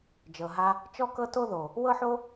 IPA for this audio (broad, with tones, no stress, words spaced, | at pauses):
d͡ʒɤ˨ɦa˧ | t͡ʃɔ˦kɤ˦to˦ðo˨ | wɤ˦ħo˦